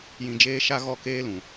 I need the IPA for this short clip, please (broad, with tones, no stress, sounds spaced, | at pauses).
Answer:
j ĩ˨ d͡ʒ eː˧ ʃ a˧ ɣ ɔ˦˨ k eː˦ l ũ˨